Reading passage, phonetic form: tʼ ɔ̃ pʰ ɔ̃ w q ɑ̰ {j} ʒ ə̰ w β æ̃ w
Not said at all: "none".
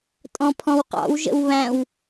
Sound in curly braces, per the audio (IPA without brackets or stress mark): w